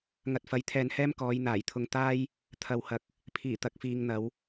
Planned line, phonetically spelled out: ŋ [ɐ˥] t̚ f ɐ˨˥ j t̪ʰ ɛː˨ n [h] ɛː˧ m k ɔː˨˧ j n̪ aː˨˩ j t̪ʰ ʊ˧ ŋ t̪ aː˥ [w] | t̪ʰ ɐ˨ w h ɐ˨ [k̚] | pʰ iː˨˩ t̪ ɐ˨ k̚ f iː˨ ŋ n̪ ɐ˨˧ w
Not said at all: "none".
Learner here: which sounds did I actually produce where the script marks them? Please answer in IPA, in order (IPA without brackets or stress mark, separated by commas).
ɐ˨, h, j, k̚